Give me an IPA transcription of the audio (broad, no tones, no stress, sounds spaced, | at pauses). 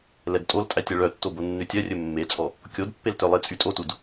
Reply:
l ɛ d tʼ o l tʼ æ tʲ ɛ ɭ œ tː o b o nː ʉ tʲ œ rʲ ɵ mː e t͡sʼ ɔ | kʲ o d pː e l t œ lˠ e t͡sʼ y tʼ o t u d